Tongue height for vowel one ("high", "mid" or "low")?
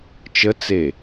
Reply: mid